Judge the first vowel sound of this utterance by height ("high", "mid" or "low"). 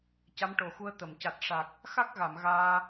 low